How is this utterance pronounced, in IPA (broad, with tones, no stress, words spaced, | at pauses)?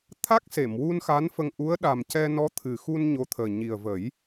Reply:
t̪ʰa˦˥k̚se˨˩˨mwu˧n xa˧˥nfə˧ŋʔu˧˥ə̯ ɗa˨˩mcɛ˧ nɔ˧˥t̪ʰɨ˨˩xu˧n ɲo˧˥t̪ʰəː˨˩ ɲi˨˩ə̯və˨˩˦j